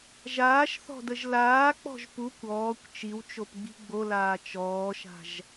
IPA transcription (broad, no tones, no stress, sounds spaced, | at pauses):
ʒ aː ʃ θ ɔ̤ d ə ʒ l aː k͡p ɔ̤ ʒ p u kʷ ɔː kʷ t͡ʃ i w t͡ʃ o p ɡ͡b i̤ ɡ͡b o l aː t͡ʃ ɔː ʃ a̤ ʒ